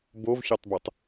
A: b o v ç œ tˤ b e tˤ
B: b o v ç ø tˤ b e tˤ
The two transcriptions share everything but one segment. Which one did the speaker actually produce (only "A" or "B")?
A